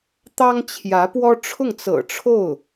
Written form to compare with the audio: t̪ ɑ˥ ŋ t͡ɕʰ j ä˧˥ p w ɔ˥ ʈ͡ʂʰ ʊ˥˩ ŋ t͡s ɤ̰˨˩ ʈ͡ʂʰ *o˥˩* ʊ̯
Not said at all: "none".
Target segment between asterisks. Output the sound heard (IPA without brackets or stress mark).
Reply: o˥˩